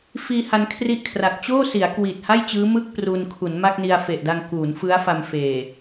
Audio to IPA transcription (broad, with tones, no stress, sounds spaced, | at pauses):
f iː˧ h a˧ n kʰ r i˥˩ ʔ kʰ r a˨˩ k̚ t͡ɕ oː˥˩ s i˩˦ a̯ k w i˨˩ t̚ h a˥˩ j t͡ɕ ɯː˦˥ m ɯ˥˩ k̚ p r u˧ n kʰ u˩˦ n m a˥˩ k̚ n i˧ a̯ f e˨˩ ʔ d a˧ ŋ k uː˩˦ n f ɯ˦˥ a̯ f a˧ m f eː˨˩